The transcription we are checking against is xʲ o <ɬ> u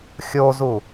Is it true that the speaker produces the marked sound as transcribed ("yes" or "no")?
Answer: no